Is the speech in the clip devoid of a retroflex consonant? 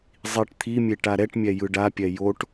no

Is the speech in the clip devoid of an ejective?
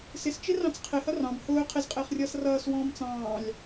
no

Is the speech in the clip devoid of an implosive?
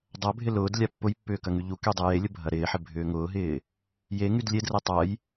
yes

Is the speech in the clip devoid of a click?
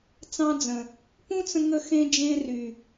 yes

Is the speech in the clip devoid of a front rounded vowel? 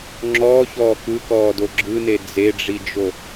yes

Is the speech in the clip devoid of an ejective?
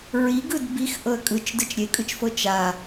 no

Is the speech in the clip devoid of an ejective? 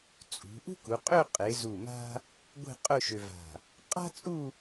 no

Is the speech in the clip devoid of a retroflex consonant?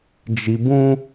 yes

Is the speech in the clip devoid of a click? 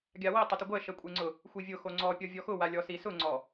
no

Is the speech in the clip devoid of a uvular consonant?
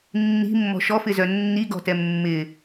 yes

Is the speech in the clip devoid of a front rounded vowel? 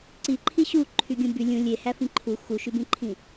no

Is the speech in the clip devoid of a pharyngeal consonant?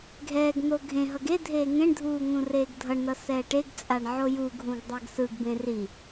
no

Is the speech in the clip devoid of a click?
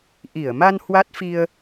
yes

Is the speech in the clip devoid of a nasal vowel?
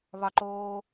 yes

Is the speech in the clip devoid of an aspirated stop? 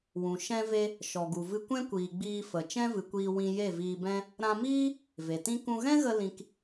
yes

